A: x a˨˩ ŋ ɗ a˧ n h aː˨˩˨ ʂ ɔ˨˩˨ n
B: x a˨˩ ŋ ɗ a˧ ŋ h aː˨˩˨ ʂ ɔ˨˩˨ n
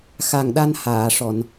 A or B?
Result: A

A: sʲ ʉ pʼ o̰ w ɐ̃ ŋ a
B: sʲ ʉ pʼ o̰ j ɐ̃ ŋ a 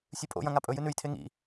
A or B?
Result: B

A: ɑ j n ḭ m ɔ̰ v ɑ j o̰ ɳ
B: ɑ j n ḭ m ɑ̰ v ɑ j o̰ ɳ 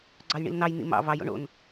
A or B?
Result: B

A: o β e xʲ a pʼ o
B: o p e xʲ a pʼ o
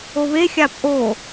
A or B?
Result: A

